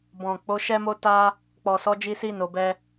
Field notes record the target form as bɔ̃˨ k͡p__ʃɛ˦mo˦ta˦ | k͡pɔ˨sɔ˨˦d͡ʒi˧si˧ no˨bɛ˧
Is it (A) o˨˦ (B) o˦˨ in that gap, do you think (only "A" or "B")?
A